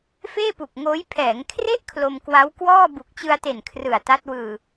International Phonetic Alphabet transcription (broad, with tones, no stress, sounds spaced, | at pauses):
f eː˥˩ p u˨˩ k̚ ŋ oː˦˥ j pʰ ɛː˩˦ ŋ kʰ r e˥˩ ʔ kʰ l o˧ m k w a˦˥ w k w ɔː˥˩ b u˨˩ k̚ t͡ɕ ɯ˧ a̯ t e˨˩ n kʰ r ɯ˨˩ a̯ t a˦˥ t̚ w ɯː˨˩